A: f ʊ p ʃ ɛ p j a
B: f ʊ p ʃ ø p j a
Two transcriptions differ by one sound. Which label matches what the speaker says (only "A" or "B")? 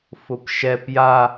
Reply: A